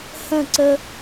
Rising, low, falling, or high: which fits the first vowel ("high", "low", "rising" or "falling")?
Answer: falling